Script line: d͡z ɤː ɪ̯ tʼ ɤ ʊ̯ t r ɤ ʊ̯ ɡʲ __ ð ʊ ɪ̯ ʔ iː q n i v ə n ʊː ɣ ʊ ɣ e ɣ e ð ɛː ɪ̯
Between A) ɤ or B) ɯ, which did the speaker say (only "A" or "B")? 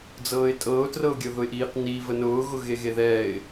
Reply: A